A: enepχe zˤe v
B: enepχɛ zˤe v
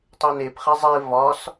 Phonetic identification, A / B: B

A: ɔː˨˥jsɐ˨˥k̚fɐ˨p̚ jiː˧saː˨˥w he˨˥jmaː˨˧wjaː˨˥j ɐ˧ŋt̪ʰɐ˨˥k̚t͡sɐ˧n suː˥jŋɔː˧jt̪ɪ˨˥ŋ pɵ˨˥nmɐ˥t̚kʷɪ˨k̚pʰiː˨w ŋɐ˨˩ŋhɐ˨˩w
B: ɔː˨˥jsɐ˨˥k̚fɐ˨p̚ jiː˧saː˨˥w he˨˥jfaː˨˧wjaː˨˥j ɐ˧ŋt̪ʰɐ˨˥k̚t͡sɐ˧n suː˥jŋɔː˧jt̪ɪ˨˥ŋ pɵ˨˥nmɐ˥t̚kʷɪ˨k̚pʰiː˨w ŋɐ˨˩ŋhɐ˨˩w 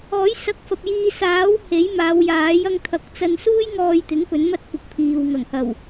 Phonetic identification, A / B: A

